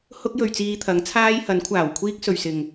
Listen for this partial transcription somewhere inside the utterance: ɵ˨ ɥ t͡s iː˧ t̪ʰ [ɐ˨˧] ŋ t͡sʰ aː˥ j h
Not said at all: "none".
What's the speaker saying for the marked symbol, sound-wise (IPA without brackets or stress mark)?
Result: ɐ˨˥